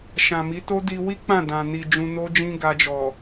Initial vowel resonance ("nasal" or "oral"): nasal